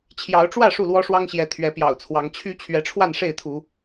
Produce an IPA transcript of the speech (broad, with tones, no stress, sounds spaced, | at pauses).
t͡ɕʰ j ɑ˨˦ ʊ̯ ʈ͡ʂ w ä˥˨ ʂ u˥˨ l w ɔ˦ ʂ w ɑ˦ ŋ ɕ j ɛ˨˦ t̪ʰ ɥ ɛ˨˦ p j ɑ̰˨˩ ʊ̯ t͡sʰ w ɑ˨˦ ŋ t͡ɕʰ y˨˦ t͡ɕʰ ɥ ɛ˨˦ ʈ͡ʂʰ w a˥˨ n ʂ e˥˨ ɪ̯ t̪ʰ u˨˦